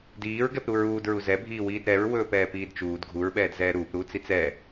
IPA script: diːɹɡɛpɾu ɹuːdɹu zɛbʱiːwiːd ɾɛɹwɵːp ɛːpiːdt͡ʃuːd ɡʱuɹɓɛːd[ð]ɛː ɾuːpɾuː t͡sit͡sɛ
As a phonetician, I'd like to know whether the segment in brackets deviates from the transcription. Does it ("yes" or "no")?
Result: yes